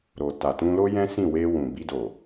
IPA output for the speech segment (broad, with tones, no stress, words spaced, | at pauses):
ɾo˨ ta˨tũ˧lo˦ jɛ̃˦sĩ˦˨we˧ wũ˨bi˧do˨